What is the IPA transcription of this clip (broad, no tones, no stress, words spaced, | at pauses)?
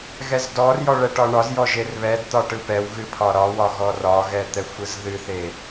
ɣɛzdɔrjɔ ɭɛʈɒɳɒzjɔ ʒerβɛdt̪ɒ ʈɯpɛwɣɨ pʰɒɾɒwɒ ɣɔrɒɣɛ t̪ɛxʷɯzðɨθe